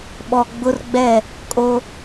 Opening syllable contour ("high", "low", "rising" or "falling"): low